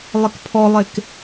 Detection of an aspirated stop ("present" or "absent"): present